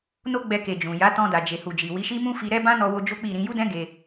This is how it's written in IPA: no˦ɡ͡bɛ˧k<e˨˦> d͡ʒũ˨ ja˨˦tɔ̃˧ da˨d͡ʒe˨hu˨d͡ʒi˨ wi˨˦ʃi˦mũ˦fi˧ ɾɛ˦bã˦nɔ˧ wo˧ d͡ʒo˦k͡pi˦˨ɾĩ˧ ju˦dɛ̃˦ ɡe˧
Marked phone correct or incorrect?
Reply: incorrect